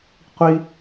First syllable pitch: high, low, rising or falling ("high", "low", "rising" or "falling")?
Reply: high